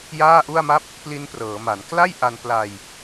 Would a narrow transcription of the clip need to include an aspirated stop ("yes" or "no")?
no